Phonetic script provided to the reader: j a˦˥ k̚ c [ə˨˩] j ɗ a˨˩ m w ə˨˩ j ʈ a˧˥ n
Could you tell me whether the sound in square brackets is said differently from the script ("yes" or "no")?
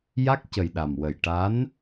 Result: no